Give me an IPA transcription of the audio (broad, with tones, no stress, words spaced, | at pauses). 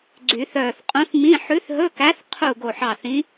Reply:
ɡ͡ǀy˨˩˦θœː˧˩θqʼũ˧˥θmĩ˧˥˧ ħʉ˧˥θɦɵ˧˥˧kæ˧˥θ qʰu˧˩ ɡo˧˩ħɑ˧˩ θĩ˧˥